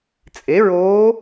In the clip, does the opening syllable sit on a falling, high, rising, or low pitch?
rising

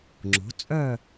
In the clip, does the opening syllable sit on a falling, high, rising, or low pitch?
rising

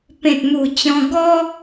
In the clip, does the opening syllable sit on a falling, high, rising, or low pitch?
low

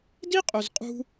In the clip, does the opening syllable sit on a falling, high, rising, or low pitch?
high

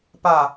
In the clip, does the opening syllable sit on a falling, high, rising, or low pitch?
low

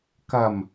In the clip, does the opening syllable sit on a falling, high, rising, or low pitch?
low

